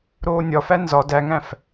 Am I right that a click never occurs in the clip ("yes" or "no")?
yes